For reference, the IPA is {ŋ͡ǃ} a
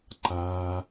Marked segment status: incorrect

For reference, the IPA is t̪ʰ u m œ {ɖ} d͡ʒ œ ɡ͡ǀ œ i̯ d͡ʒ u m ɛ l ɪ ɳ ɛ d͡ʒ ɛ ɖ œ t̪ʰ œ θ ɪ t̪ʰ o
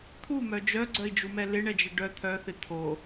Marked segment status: incorrect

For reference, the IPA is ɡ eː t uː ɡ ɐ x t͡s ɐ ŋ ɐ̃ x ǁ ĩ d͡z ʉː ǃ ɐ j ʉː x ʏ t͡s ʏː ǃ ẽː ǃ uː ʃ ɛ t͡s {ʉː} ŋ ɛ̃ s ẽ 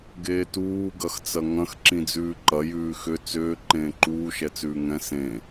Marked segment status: correct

